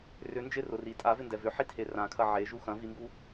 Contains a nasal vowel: yes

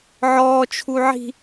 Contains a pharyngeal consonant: yes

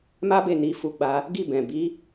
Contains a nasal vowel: yes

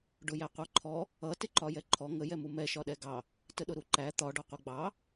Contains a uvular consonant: yes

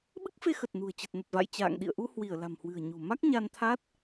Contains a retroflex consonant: no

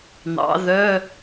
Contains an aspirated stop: no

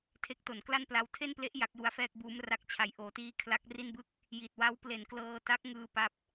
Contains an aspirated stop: yes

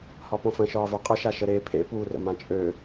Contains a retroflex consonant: no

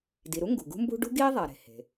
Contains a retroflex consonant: yes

